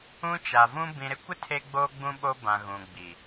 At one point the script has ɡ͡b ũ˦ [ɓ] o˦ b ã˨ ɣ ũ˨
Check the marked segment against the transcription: correct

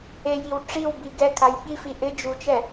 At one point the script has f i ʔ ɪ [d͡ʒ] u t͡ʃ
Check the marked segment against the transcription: correct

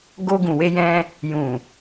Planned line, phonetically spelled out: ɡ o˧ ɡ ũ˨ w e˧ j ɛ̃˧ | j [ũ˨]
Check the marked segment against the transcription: correct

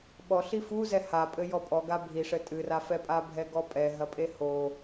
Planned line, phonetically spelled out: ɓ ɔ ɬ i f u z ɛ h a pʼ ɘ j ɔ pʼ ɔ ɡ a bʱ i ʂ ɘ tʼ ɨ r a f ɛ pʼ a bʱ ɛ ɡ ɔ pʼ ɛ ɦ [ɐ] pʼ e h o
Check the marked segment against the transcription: correct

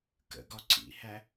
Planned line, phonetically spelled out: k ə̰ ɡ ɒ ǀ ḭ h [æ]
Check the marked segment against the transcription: correct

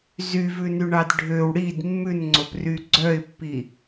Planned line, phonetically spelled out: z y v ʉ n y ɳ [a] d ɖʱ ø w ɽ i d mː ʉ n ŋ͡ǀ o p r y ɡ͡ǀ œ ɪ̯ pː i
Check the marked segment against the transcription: incorrect: ɑ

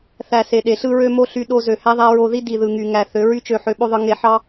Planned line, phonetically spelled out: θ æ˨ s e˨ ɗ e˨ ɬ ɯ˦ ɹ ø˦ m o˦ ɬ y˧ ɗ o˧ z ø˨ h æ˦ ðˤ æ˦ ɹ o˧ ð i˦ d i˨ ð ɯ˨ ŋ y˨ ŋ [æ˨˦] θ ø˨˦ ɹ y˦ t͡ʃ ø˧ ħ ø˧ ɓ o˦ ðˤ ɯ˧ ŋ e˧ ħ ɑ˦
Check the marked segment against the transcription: incorrect: æ˨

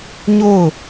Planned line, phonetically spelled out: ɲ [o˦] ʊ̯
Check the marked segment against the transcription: incorrect: o˦˨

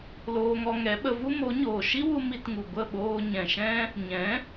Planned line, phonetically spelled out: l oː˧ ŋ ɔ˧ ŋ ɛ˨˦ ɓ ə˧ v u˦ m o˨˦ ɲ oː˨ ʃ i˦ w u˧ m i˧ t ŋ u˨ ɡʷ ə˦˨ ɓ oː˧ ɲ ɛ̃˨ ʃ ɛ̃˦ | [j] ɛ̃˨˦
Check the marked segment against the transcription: incorrect: ɲ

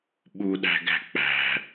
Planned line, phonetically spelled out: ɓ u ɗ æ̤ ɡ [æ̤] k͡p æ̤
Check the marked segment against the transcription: correct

